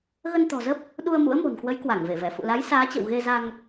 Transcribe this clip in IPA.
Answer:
ɣ ə˧ n t̪ ɔ̤˨˩ z ə˦˥ p̚ | ɗ u˧ ə̯ m ṵ˧˥ ə̯ m o̤˨˩ n k w ə˨˦ j k w a˧˩ ŋ v e˧˩ v ɛ˧˩ f ṵ˧˨ l a˨˦ j s aː˨˦ t͡ɕ ə̰˧˨ w ɣ e˧ z a˧ ŋ

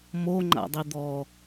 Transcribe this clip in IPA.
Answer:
m o ŋ͡ǃ a̰ dˤ i d̪ ɔ

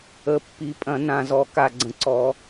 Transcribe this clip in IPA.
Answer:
ə˨˩˦ pː i˨˩˦ pʼ ɐ̃˨˩˦ n ã˨˩ z ɔ˨˩˦ k a˨˩ ɡ͡ǀ ə̃˨˩˦ ǀ ɔ˨˩˦

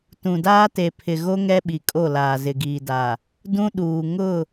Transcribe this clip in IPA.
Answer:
t ũ˨ d aː˦ t e˨ pʰ ɪ˨ ɣ o˦ ŋ ɛ˦ ɓ i˨ kʼ o˦˨ l aː˨ z ɪ˨ ɡ iː˨ d a˨ | d ũ˦ ɗ uː˨ ŋ ʊ˦˨

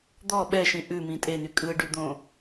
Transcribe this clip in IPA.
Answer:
d̪ ɔ ɓ ɛ ʃ ĩ ʔ ʉ m ĩ tʼ e n y kʼ ɯ ɖ y d̪ õ

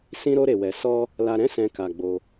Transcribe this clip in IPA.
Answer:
s ĩ˦ ɾ o˦ ɾ e˧ w ɛ˧ s ɔ˦ | l a˧ ɾ ɛ̃˦ s ɛ̃˧ k a˧ ɡ͡b o˧

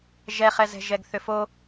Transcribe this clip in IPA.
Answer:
ʒ ɛ χ ɛ z ɛ̤ ʒ ɛ ɡ θ ʏ f o

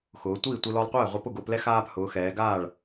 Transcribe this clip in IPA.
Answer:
x ʊː˩˧ tʷ iː˥˩ tʷ i˧ l ɔ˧ lˠ qʷ ɛː˥˩ ʁʷ e˧ p ʊ˥˩ ɡ ʊː˧ p l ɛ˥ x aː˧ p h ʊː˩˧ x ɛː˩˧ ɡ aː˥˩ ɭ

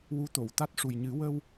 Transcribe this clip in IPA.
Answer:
w u˧˥ t̪ o˨˩˨ w t̪ a˦˥ t̚ ʂ u˨˩ j ɲ ɨ˨˩˦ w ə˧ w

